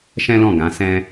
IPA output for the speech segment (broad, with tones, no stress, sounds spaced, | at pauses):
ʃ ɛ̃˦ l ɔ̃˦˨ ɡ ã˨˦ s ɛ̃˦